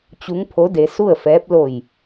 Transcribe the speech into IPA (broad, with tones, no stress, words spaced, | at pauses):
t͡ɕu˧˥ŋpʰo˧˥de˧su˥˨ə̯ fɛː˧˥p̚ lo˧˩j